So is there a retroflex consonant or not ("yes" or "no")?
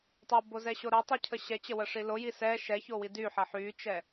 yes